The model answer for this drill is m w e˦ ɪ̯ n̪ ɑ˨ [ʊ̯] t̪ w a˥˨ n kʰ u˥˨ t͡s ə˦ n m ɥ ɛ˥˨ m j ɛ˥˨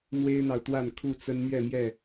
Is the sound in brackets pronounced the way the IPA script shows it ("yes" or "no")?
yes